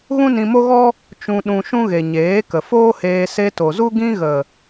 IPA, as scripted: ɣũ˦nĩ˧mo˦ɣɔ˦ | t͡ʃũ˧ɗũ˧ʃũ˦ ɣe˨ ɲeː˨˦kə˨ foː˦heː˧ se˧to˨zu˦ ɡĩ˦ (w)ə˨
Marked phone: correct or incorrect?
incorrect